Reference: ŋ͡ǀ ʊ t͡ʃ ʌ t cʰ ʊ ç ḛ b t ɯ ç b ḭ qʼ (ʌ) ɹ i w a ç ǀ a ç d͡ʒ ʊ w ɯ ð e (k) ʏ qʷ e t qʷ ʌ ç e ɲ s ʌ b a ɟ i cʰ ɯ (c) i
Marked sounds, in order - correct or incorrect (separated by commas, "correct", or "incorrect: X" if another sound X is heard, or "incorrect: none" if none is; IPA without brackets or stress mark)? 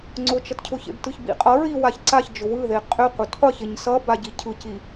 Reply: correct, incorrect: qʼ, correct